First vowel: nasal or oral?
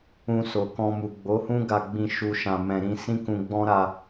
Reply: nasal